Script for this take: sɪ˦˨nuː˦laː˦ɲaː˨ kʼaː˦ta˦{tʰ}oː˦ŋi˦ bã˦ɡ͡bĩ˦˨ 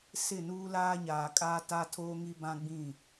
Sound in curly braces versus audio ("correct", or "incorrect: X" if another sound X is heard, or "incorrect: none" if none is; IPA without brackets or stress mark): correct